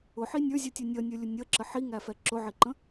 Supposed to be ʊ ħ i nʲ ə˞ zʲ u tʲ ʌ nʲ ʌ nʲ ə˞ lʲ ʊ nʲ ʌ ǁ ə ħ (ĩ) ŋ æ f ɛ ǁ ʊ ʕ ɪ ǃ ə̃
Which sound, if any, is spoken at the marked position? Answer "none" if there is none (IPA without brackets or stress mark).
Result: i